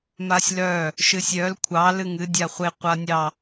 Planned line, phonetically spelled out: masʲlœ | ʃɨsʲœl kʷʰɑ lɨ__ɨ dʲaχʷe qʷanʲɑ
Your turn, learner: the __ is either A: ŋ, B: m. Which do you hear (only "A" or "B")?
A